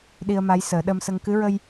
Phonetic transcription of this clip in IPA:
ɗi˧ə̯ma˧˥jsəː˨˩˦ ɗə˧msə˧ŋ kɨ˧˥ɹə˧j

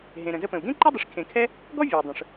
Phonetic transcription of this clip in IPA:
ɦẽ˩ ɾə̃˩zə˦pə̃˩u̯ ɡẽ˥ǃe˥dˤi˨ʂ kʰẽ˨kʰɛ˥ | ɡɔ˦vʲʌ˩i̯ dˤə̃˩ʂ

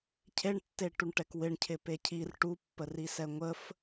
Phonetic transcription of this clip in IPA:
cʰeɳtːeʈuɳʈɛk wɪɳcʰɪ pecʰir ʈupːə risɛŋʷəf

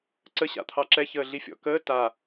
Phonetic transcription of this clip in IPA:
ǀəɕa̰t̪ʰɑ ǁɛçəːɮi fʲɔ̰kəː ta

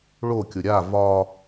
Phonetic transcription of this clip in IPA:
ɭokʲʊ ɾʲa vɒ

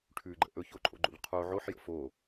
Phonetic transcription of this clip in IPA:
ʈʰʉɡ͡ǃə̰ ʔɵçoǃʼo̰ɡ͡ǃo̰ʎ qʰo ʕoħjə̰ fo

